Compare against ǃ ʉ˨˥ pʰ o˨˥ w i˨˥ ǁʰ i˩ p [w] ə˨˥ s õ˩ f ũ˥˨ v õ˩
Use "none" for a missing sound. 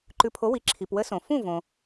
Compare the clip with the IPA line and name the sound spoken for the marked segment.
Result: w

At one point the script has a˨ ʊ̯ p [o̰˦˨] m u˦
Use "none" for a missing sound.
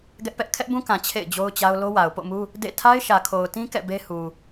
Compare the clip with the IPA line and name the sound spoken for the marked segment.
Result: o̰˦˨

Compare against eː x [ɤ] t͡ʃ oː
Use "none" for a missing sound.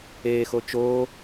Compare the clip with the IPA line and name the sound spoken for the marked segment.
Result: o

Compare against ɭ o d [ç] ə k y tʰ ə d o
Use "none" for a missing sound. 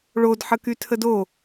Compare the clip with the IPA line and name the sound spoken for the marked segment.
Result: ħ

